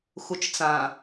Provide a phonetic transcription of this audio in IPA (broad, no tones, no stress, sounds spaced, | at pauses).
x u t͡ʃ t͡s ã